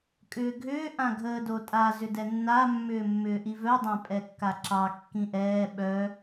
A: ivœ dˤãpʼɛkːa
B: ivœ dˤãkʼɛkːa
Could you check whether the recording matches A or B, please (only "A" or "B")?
A